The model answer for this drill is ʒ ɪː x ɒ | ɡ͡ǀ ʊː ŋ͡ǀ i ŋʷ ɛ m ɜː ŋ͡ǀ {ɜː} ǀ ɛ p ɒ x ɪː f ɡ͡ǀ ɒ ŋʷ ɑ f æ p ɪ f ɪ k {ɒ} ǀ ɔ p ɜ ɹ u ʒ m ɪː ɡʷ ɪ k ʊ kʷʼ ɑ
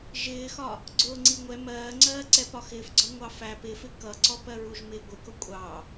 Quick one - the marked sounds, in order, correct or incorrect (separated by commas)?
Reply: correct, incorrect